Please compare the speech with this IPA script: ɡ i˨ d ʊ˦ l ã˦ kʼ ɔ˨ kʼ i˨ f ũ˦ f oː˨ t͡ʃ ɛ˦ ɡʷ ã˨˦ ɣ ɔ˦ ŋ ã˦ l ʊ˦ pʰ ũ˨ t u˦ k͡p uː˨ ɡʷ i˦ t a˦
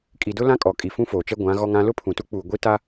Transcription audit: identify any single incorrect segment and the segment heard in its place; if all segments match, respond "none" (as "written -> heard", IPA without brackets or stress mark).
ɡ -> kʼ